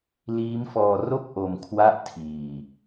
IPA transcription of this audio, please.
liː˦˥mfɔː˧ ro˥˩k̚ ʔo˧mkʰwa˥˩ʔtʰiː˧

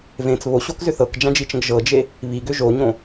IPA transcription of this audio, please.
vẽt͡s βoɕokzʏ θɤkd͡ʒãd͡ʒit͡ʃə̃ɡ ʒɤd͡ʒe | βiɡʏ ʒoɲõ

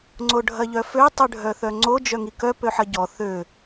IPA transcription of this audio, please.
ŋ͡ǀoɖʱɐʎœfø tˤɨɖʱœθœŋ͡ǀo d͡ʒœŋikœ pøħɐɟɔ θø

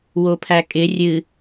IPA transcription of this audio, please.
wopʰækʼɪ rʲɨ

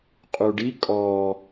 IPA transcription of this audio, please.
qʼuɖi kʼɔ

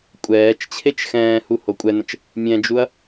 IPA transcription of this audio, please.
kʷʼɛːt͡ʃt͡ɕʰet͡ʃ xɛ̃ːhu hokʷʼɛnə̃t͡ʃ | mʲɛ̃d͡ʒuɐ̯

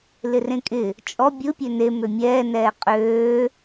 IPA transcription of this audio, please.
lɪrẽkʼɪ | t͡ʃʼɔ bʲɯ pʲøne mømʲɛː nɛːqʼøː

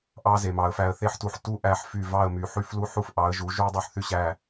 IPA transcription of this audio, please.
ʔɑ˦ze˨ mɑ˨ə̯ fæ˨ə̯θe˦ħ tu˨ħ tu˦ ʔæ˦ħfy˦˨ vɑ˦˨ə̯my˨ħy˦flu˦ ħu˦f ʔɑ˨˦ə̯ʒu˨˦ ʒu˦ə̯dˤu˦˨ħθy˦ɕæ˦˨

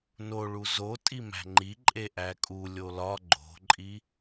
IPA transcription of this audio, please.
noɭu zo tʼimæ̤ŋ͡ǃiǃʼe ʔækʼu lʲolɒ ɡ͡ǃo̤ǃʼi

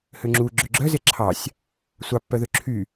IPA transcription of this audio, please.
høŋ͡ǁu ɡ͡ǁøɡ͡ǁœze ǁʰɑsʲ | sʷɑpːœðø ǁʰy

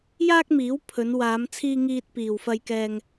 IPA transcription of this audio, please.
jaː˥k̚miː˨˥w pʰɵ˨˧nwaː˨˧mt͡sʰiː˧ ŋiː˧t̚piː˨wfɐ˧jkɛː˧ŋ

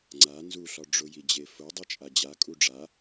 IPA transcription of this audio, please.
ŋ͡ǀa nzuɬɒ ɖ͡ʐʊji d͡ʑefʊ dˤit͡ʃʼad͡ʑa kʼuɖ͡ʐa

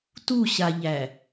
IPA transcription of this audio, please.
tuɕaʎæ

